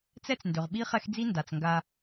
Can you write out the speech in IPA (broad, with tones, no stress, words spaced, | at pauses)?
t͡sɛ˦t͡sndʏ˨ʁ ɓi˦χɛ˦xd͡zi˦ nda˨t͡sŋɡa˦